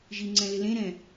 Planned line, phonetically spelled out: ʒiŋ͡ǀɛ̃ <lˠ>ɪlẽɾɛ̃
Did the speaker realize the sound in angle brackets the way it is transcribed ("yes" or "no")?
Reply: no